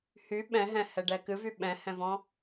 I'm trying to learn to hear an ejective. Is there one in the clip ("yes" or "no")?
no